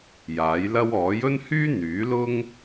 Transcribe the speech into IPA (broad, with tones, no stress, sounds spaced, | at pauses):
j aː˨˥ j l ɐ˥ w ɔː˨˥ j ɵ˥ n h yː˥ n̪ yː˨˥ l ʊ˥ ŋ